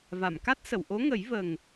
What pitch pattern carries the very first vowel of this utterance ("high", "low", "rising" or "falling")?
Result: low